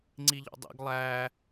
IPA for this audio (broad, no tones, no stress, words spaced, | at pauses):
ŋ͡ǀiʎɔ̰dˤḭɡ lˠæ